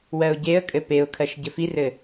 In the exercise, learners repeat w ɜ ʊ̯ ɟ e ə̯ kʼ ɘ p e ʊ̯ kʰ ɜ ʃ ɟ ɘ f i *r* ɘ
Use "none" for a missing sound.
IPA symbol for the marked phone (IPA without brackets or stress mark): r